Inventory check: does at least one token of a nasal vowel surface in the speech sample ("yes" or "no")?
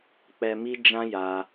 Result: yes